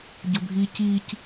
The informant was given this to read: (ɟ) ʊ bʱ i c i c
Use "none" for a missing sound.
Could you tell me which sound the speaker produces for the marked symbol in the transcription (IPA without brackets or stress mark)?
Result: ɟ